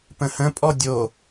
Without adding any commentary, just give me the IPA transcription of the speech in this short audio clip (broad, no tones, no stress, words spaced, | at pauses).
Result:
pə̃hə̃pʼɔ dʲo